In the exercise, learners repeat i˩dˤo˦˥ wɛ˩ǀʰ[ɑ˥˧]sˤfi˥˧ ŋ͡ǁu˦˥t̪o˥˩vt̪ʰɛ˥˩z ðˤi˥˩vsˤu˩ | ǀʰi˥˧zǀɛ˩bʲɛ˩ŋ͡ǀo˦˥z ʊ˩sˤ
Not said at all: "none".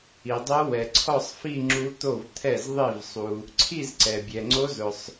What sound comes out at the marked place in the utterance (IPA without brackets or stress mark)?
ɔ˥˧